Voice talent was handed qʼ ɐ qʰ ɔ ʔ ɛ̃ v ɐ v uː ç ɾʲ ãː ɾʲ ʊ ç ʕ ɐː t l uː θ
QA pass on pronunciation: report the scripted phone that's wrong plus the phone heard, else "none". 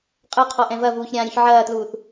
none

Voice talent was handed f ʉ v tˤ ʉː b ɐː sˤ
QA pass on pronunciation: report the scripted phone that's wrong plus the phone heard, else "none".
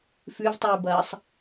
none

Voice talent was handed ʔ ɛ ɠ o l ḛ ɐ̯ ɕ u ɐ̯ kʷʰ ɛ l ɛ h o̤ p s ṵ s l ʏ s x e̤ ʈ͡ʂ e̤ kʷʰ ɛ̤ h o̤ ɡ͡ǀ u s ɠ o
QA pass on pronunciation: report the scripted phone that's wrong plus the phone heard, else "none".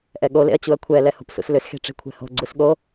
ɕ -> t͡ɕ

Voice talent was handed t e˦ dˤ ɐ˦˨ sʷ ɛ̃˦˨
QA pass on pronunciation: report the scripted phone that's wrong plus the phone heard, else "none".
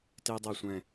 none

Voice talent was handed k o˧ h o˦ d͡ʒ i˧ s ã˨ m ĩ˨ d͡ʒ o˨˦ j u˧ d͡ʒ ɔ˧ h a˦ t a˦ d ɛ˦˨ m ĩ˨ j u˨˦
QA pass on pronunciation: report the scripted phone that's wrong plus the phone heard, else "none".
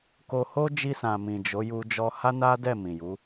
t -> n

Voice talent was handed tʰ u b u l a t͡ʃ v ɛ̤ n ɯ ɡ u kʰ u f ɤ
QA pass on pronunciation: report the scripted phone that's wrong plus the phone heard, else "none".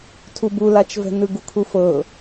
none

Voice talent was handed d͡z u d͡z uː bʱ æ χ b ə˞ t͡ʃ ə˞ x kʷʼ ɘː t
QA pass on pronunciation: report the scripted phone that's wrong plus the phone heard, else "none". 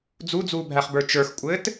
none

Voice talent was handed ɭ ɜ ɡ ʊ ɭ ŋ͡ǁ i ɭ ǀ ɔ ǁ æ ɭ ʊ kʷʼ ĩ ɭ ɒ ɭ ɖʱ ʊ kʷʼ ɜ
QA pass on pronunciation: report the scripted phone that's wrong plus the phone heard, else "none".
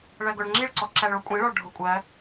none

